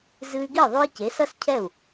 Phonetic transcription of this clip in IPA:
z ɨ˧ y̯ ɡ i˥˩ ðˤ o˧ i̯ c e˩˥ s ɐ˥ s cʰ ɛ˥˩ u̯

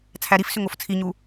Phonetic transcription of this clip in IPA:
t͡sʰ æ ɾ i f s ʏ ŋ o f t͡sʰ i ɲ u

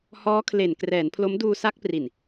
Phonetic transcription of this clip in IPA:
h ɔː˦˥ kʰ l e˨˩ n k r ɛː˩˦ n pʰ l o˦˥ m d uː˧ s a˦˥ k̚ p r i˨˩ n

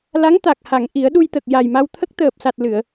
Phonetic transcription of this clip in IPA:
l a˧˥ ŋ t̪ a˨˩ k̚ h a˨˩˨ ŋ ʔ i˨˩˦ ə̯ ɗ u˧ j t̪ ə˨˩ k̚ j a˨˩ j m a˧ w t̪ʰ ə˦˥ k̚ t̪ əː˨˩ p̚ s a˨˩ t̚ l ɨ˨˩˨ ə̯

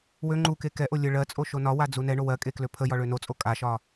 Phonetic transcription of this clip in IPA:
w ø ŋ͡ǃ u k e k ɛ ʔ o lʲ ə ɭ ɜ t͡sʼ o ʃ o n ɒ w a d͡z u n ɛ ɳ o w ɜ kʼ e k l ø pʰ ə j ɒ ɭ ø n o t͡sʼ o kʼ a ʃ ɒ

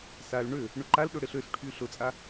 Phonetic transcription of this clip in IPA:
s a l ɳ ø | ɳ ʊ ǃ a l ɗ ʊ ɽ ɪ ɬ ø s ʈʰ y ɬ ʊ t͡sʼ a

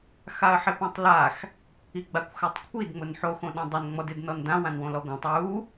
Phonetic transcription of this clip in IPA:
x a ə̯ ħ ɪ p ã tˤ l a x | i ɡ͡b a kʷ x a tˤ kʷʰ i d ŋ͡m ʊ n ħ o x õ ɗ ã dˤ ʊ n ŋ͡m ɔ d ɪ d n ɔ n d ã w ã n w õ l ɔ ɡʷ ã tˤ w u

